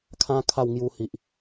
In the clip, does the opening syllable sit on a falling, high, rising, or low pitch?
high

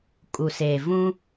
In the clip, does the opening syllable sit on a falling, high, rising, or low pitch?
low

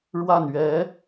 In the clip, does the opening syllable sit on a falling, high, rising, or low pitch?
falling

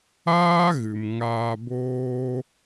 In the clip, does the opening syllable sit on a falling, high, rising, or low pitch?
high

